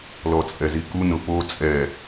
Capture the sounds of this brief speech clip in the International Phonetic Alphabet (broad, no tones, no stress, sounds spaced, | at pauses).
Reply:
l ɔ t͡sʼ ɛ z i k u n ʊ p o t͡sʼ ɛ